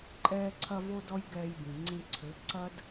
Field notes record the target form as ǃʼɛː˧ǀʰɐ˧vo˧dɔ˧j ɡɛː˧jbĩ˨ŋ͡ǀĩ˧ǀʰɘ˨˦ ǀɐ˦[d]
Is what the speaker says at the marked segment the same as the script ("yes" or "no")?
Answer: yes